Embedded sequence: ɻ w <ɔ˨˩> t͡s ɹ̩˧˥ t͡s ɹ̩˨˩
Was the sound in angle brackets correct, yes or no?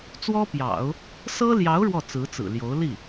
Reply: no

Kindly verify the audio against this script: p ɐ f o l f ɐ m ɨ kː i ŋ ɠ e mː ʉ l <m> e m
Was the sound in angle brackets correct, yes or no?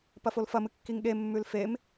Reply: no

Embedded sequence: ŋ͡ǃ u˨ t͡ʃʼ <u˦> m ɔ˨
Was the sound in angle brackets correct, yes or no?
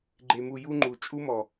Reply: yes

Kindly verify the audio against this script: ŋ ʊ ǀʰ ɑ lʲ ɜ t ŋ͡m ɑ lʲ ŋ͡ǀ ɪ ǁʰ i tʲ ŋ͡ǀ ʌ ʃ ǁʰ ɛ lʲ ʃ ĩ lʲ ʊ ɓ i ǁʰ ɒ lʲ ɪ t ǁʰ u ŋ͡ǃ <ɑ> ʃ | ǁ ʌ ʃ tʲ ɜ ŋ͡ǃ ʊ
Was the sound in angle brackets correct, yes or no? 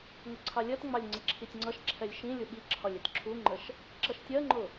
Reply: no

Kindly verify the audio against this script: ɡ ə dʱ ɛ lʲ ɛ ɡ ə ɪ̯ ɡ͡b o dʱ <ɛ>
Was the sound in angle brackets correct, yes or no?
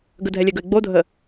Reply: no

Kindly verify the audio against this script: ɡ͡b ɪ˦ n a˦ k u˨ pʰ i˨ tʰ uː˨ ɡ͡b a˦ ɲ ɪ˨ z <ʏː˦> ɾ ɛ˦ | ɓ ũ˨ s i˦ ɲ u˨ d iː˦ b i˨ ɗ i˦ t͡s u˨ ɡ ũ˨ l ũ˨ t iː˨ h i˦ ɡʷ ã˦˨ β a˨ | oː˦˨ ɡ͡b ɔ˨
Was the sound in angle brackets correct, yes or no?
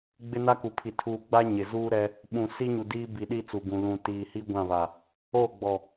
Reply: no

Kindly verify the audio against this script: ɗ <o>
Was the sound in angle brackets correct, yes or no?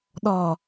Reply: no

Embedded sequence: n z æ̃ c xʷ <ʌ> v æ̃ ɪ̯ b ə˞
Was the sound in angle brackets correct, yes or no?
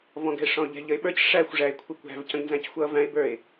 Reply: yes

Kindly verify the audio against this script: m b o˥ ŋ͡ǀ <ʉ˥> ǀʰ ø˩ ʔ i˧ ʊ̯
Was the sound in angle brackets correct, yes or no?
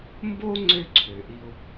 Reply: no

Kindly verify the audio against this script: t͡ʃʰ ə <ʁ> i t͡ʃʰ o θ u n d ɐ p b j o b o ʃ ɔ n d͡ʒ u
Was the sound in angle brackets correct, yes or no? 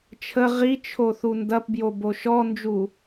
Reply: yes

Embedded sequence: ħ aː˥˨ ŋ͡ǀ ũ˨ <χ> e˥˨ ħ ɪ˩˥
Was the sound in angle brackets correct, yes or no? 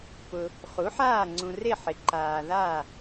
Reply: no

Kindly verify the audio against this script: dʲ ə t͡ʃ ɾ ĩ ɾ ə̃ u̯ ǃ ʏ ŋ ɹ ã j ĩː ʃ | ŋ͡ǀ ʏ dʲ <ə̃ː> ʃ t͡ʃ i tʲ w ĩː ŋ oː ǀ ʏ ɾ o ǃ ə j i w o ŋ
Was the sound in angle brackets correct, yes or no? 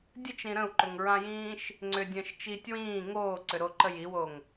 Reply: yes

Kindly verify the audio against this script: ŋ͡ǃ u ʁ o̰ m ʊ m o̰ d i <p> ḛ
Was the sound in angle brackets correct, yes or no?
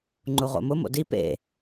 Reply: yes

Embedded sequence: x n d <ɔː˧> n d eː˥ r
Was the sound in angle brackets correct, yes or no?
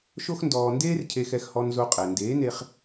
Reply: yes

